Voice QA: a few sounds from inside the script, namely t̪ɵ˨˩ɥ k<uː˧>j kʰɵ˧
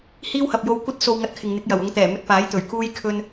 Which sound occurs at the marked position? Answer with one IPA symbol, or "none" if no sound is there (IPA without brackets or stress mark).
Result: uː˧